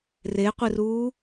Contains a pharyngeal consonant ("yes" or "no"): no